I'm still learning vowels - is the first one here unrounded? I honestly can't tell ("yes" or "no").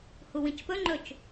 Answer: no